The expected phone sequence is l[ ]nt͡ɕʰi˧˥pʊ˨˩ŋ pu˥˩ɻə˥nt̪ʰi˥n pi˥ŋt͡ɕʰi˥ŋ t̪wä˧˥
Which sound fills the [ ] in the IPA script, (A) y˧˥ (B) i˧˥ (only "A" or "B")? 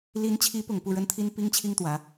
B